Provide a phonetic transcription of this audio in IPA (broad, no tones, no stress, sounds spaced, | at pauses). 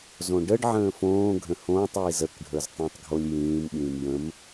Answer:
z õ ɖ ə ɖ ʕ ə̃ː f õː ɡʱ ə̃ h õː tˤ j i z ə k ɖʱ ə˞ z tˤ ə̃ː tˤ ɡʱ o lʲ j ĩː m ɓ ĩː m j ə̃ m